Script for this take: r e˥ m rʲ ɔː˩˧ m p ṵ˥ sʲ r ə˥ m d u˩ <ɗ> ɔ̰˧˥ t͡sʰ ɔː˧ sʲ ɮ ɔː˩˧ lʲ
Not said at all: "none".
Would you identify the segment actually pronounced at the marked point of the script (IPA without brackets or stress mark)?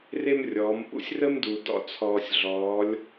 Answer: d